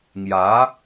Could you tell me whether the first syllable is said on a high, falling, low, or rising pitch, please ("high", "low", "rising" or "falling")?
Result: rising